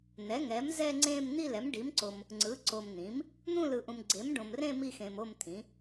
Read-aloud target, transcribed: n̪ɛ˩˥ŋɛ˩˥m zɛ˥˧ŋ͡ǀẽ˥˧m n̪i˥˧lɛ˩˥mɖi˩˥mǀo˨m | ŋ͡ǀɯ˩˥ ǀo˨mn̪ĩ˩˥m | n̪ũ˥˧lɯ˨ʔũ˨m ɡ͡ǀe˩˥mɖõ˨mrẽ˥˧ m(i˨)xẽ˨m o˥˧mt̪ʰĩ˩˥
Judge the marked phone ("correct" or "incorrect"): incorrect